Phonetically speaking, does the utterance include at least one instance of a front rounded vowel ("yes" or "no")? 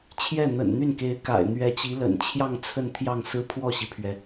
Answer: yes